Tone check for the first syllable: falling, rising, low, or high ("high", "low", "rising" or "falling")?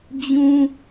high